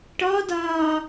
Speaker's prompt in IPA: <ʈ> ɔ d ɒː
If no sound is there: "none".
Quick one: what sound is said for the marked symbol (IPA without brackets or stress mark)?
ʈ